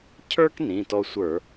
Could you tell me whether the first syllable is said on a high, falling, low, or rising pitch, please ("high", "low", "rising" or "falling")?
high